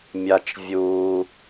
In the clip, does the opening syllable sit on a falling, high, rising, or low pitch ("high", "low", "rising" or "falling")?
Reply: low